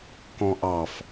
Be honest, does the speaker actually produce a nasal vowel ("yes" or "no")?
yes